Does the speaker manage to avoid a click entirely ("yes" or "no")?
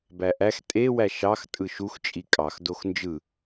yes